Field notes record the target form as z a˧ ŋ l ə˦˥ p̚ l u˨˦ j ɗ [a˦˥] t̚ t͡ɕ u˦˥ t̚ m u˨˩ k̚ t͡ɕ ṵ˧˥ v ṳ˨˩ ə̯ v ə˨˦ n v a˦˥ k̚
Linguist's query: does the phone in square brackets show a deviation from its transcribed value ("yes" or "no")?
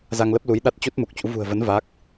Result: no